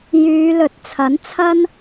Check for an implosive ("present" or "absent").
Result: absent